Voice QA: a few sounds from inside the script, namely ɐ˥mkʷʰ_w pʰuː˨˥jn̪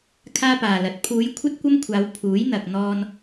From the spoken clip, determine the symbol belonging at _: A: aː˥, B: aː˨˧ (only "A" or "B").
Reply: B